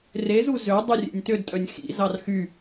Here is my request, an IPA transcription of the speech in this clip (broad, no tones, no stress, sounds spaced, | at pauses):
r e z u z ø dˤ ʉ rʲ ḛ nʲ t ø d tʼ œ nʲ x ḭ z ɑ r x y